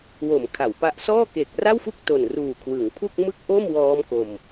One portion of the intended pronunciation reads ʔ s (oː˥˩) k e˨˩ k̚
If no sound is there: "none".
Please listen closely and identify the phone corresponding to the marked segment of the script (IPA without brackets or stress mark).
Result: ɔː˥˩